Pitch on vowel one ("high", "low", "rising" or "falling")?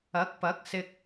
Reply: rising